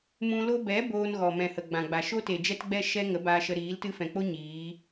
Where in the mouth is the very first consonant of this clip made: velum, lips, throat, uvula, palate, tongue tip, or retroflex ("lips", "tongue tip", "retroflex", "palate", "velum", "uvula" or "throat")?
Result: lips